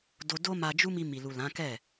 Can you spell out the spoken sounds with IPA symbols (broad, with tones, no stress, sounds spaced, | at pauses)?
d o˧ d o˦ m a˧ d͡ʒ u˦ m i˧ m i˨ l u˨ l ã˨˦ k ɛ˦˨